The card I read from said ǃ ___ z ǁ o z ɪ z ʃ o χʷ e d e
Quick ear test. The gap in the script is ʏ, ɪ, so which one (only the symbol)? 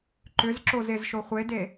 ʏ